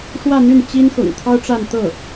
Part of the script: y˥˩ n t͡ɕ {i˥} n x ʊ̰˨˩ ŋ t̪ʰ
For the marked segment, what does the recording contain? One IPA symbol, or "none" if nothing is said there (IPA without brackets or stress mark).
i˥